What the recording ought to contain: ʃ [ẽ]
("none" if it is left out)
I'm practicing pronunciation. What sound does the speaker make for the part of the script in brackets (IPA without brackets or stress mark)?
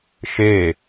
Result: e